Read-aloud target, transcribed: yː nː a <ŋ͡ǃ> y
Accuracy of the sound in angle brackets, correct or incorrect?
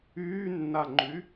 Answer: correct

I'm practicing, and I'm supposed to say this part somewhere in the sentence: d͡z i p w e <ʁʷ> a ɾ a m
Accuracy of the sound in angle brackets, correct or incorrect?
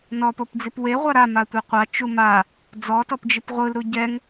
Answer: correct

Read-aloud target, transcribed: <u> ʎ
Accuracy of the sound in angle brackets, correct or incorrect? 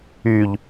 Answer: incorrect: y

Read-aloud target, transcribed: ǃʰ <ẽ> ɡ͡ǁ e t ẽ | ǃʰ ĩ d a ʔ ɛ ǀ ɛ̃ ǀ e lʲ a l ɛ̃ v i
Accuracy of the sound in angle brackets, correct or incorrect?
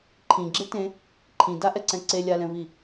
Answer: incorrect: ĩ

